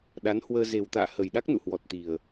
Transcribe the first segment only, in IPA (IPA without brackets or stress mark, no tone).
ɗ